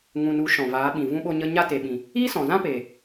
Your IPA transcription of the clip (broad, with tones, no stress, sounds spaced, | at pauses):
ŋ ũ˨ n u˨˦ ʃ ɔ̃˨ v aː˨˦ ɓ ĩ˨ v ũ˧ ɓ o˧ ɲ ə˧ ɲ a˦ t e˨ ɓ ĩ˨ | iː˦ s ɔ̃˨ z ã˦ p eː˨